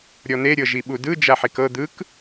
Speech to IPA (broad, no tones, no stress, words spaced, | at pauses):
ɾʲɔn̪e ɾʲɤʒiɓudɯ d͡ʒaħikɤ d̪ɯk